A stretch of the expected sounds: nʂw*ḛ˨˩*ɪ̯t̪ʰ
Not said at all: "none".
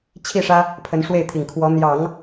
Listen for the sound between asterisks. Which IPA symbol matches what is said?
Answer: e˥˩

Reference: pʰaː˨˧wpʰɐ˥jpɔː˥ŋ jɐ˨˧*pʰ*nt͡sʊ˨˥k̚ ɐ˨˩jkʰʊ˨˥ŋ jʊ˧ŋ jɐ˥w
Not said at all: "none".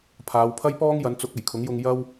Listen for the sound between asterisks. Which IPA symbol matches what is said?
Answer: none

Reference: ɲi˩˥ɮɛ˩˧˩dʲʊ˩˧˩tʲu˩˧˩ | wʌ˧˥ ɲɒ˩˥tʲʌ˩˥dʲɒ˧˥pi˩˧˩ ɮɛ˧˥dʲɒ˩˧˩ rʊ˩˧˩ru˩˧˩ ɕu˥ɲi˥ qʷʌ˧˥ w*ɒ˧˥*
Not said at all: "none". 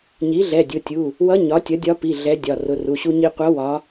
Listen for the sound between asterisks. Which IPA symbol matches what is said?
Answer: ɒ˧˥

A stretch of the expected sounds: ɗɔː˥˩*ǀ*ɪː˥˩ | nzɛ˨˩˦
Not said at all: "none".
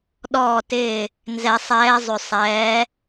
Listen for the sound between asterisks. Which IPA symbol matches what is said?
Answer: t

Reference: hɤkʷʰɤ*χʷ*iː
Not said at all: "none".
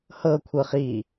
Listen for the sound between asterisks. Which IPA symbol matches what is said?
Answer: χ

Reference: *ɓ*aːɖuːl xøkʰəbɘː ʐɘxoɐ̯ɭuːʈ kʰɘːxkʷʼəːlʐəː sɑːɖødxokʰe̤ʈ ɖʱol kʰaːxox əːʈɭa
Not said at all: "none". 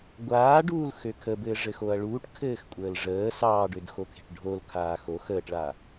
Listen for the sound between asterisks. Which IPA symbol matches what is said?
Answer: ɡʷ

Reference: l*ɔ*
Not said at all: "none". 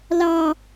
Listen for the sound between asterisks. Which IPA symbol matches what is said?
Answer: ɑ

